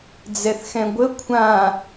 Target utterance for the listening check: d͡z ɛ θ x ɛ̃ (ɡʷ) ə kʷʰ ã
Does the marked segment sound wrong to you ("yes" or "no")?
no